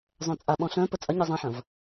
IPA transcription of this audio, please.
zˤœ̃t͡sʼaɓɔ̃ ɬœ̃ pət͡sʼɐɲe zˤãħɐ̃v

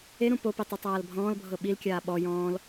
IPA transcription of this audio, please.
eɾũ popi tˤutˤaːlbʱɔ̃ːlbʱɤ ɓilkʲaː ɓɔ jɔ̃ːl

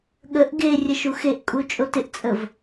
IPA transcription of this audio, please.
ɠəʔ ɡe rʲəʃuxeʔkʼu t͡ʃʼotɪʔt͡sʼəv

